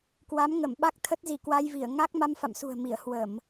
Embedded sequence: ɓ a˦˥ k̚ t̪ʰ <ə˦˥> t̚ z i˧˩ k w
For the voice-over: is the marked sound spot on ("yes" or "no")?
yes